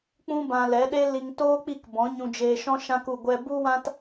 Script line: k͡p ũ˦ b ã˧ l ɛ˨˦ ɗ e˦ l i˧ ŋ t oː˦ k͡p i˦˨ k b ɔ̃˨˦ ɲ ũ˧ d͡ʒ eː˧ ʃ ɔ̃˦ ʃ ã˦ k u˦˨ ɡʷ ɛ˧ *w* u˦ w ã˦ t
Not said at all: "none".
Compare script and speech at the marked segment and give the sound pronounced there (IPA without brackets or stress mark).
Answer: b